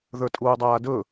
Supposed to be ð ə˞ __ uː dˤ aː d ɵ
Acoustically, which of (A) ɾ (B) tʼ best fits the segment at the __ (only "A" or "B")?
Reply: B